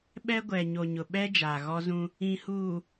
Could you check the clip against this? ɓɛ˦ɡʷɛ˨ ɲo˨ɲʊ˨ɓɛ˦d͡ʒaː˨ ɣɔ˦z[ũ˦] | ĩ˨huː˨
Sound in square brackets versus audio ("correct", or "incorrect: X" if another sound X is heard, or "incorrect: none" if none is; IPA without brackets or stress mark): correct